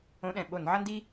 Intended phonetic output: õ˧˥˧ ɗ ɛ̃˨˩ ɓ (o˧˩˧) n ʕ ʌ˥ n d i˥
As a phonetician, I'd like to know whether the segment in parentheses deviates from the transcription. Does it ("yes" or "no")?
no